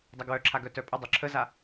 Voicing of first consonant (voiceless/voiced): voiced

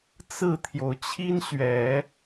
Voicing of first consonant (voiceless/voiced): voiceless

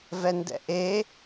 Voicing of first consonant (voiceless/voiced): voiced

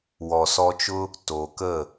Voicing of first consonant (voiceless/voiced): voiced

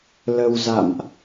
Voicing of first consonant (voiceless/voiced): voiced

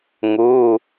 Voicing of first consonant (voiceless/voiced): voiced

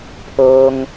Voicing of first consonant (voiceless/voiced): voiceless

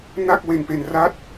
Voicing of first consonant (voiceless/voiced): voiced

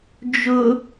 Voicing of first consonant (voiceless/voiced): voiced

